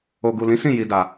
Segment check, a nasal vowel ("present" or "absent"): present